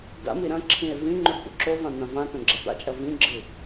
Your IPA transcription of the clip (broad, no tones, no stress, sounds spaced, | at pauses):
d a̰ m i ɾ ɐ̃ ǁʰ ĩ e̯ v ĩ ŋ͡ǃ u ɖ p ṵ ǁ o v ã n̪ ã v ã t õ ɡ͡ǁ a t̪ a̰ t͡ʃʼ ɐ v ĩ ɡ͡ǁ ɨ